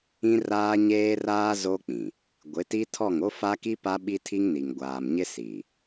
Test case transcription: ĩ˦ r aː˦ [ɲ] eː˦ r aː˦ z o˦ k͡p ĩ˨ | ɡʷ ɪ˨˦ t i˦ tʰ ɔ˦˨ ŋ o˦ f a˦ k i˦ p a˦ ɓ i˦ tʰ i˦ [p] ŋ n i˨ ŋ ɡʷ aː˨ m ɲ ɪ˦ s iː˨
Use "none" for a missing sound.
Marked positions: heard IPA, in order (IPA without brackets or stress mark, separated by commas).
ɲ, none